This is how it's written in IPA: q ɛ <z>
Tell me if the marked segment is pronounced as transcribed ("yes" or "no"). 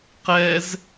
yes